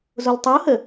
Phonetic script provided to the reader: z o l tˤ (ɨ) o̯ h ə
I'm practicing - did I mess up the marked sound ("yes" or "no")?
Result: no